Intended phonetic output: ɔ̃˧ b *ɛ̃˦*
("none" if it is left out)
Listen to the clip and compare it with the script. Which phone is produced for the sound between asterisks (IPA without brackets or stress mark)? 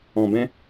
ɛ̃˦